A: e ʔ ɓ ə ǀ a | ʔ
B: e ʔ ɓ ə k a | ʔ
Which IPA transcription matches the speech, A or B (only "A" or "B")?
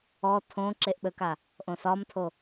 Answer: B